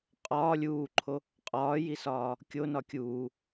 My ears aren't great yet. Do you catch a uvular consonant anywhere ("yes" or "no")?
yes